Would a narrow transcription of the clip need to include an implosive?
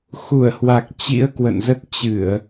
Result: no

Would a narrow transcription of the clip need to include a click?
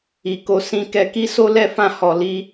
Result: no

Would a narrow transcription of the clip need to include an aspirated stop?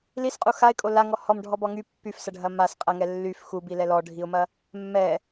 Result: no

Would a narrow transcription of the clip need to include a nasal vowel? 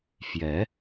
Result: no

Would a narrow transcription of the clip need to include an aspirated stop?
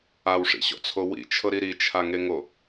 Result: yes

